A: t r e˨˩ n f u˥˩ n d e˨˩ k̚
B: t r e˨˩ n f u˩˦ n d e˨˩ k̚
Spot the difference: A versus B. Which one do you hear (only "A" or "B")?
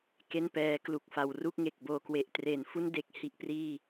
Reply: A